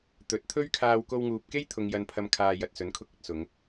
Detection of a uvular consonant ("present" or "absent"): absent